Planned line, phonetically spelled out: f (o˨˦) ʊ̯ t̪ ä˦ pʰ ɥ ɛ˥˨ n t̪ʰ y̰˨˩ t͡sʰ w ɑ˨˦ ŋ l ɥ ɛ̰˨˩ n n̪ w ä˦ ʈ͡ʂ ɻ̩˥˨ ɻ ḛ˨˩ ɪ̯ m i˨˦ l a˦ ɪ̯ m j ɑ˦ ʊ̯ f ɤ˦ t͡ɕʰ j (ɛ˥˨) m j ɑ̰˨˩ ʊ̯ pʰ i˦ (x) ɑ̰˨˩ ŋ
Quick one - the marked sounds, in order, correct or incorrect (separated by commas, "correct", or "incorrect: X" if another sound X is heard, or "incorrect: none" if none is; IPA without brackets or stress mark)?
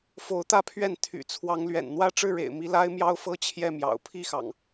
correct, correct, correct